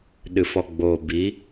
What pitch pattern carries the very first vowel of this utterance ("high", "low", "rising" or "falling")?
low